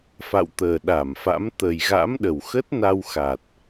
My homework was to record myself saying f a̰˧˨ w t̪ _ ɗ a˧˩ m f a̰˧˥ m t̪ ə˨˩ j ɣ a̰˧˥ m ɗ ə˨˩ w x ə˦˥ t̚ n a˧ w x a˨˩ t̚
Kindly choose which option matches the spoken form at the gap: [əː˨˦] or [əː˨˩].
əː˨˩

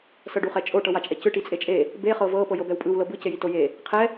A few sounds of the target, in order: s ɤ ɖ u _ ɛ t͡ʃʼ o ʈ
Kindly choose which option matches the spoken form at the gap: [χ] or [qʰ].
χ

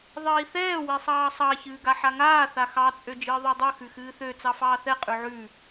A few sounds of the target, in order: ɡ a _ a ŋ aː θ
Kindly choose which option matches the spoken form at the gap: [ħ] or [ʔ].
ħ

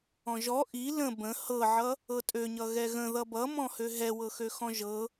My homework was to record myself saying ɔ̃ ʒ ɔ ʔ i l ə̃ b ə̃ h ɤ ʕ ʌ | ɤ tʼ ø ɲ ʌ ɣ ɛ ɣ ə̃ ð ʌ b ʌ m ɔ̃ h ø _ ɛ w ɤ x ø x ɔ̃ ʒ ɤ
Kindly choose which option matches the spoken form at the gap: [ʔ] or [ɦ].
ɦ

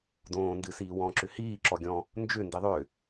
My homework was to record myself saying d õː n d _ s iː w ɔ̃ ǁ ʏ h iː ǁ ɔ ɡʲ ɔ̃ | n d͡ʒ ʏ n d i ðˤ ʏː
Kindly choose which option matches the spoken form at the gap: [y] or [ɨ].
ɨ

